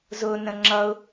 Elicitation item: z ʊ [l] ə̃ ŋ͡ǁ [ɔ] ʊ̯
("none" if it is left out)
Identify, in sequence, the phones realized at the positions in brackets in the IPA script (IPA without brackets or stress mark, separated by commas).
n, ʌ